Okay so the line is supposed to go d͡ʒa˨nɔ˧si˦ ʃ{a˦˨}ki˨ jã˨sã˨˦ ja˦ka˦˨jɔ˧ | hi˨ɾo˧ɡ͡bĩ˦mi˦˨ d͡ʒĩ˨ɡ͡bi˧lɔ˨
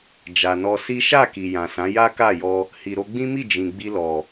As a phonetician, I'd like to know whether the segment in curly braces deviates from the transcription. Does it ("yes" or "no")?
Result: no